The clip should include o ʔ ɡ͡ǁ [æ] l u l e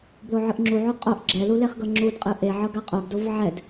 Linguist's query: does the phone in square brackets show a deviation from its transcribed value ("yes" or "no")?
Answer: yes